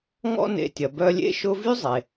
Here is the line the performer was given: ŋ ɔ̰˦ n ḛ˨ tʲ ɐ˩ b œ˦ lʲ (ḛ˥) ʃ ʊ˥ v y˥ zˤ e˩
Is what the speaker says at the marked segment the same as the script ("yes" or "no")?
yes